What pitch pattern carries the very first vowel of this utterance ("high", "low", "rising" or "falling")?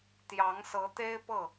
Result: rising